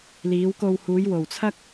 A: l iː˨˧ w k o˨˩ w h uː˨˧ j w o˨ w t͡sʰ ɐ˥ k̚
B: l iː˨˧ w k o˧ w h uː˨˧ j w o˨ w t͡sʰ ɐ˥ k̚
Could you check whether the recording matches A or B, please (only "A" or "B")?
B